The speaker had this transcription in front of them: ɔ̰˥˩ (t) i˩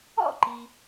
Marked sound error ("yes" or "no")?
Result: yes